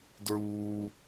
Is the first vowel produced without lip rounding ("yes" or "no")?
no